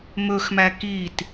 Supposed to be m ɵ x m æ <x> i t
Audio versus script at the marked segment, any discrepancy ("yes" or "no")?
yes